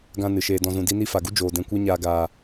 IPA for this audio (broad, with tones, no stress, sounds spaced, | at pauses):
ɡ ã˧ n ɨ˨ ʃ eː˧ d ɔ̃˧ z ũ˧ d i˦ n i˦ f a˨ ɡ u˦ d͡ʒ oː˨ d ɛ̃˧ kʷ ɛ˦ ɲ aː˧ ɡ aː˨